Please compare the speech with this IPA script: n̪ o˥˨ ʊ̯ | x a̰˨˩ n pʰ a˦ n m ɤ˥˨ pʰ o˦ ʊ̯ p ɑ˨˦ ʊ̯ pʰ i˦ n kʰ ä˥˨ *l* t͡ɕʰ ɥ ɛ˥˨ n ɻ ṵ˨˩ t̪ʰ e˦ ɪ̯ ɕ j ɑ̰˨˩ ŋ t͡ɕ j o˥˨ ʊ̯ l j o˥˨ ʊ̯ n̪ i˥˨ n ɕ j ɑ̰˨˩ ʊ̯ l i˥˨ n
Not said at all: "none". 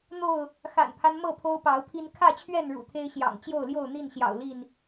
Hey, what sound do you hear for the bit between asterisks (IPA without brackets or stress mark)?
none